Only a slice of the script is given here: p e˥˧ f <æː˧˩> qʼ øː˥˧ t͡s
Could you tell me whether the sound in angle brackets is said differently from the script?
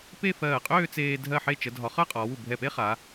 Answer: yes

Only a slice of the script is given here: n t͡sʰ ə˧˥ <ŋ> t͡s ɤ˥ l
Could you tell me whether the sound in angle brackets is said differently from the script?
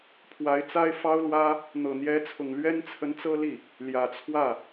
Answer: yes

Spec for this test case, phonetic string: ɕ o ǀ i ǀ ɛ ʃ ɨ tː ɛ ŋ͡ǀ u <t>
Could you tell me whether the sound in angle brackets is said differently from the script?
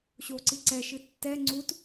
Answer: no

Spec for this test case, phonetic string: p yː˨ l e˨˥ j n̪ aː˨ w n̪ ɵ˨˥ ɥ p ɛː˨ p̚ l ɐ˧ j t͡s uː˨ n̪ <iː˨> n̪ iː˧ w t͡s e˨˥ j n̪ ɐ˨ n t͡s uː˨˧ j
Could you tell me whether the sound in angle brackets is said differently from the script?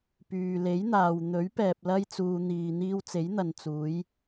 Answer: no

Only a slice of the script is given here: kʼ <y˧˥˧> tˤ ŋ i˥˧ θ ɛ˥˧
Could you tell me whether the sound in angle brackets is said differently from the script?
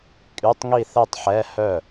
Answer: no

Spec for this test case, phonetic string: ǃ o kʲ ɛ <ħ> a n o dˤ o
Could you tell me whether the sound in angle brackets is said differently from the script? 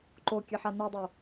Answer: no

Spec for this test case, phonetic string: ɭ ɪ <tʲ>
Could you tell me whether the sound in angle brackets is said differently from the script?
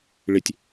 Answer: no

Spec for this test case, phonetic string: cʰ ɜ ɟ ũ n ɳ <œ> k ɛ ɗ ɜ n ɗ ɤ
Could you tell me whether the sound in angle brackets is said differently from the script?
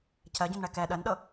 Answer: yes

